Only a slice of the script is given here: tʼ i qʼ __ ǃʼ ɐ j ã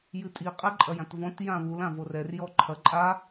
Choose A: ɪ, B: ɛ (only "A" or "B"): B